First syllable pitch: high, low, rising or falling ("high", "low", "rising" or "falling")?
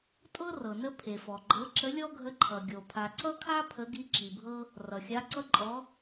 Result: high